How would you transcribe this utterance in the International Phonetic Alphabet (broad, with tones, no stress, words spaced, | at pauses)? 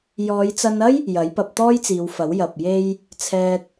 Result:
jɔː˨˧jt͡sɐ˧nɐ˥j | jɐ˨˥jpɐ˧p̚ t̪ɔː˥jt͡siː˨˧wfɐ˨˥w jɐ˨p̚je˧j | t͡sʰɛː˧t̚